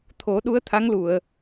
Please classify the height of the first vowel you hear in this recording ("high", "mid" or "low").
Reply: mid